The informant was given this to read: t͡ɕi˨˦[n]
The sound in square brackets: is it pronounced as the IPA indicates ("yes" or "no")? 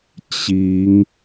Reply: no